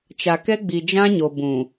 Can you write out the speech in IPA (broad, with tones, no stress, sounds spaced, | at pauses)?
t͡ʃ a˨ k ɛ˦ ɡ͡b i˨ d͡ʒ ã˦ ɲ o˨ b ũ˨